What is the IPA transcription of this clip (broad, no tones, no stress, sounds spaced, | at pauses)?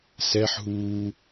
s ɛ ħ ɦ uː